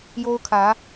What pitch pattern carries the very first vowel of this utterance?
high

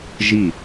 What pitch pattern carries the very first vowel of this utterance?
falling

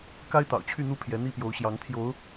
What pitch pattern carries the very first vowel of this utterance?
high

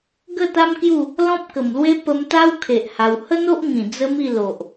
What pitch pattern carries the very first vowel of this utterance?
falling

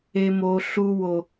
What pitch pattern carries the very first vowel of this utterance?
high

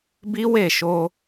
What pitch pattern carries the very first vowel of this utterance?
high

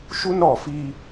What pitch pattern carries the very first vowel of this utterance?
high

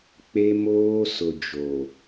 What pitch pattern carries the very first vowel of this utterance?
high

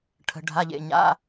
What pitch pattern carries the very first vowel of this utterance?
low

